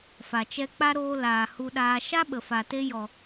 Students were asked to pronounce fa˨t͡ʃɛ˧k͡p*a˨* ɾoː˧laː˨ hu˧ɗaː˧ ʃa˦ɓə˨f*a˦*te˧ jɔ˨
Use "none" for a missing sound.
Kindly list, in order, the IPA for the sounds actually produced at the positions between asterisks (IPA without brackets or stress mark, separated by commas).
a˦, a˨